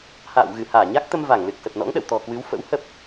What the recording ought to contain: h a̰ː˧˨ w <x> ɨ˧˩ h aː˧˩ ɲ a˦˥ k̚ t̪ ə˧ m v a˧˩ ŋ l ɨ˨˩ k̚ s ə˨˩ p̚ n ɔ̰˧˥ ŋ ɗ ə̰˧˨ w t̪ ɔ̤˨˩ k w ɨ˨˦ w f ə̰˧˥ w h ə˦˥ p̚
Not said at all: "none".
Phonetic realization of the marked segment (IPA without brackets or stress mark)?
ɣ